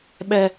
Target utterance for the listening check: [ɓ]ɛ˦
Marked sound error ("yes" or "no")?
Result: no